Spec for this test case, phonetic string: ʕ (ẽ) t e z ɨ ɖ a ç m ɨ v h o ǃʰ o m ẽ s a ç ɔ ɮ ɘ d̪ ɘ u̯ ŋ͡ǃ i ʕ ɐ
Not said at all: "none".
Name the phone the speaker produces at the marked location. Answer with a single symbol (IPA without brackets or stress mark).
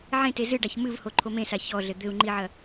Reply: ẽ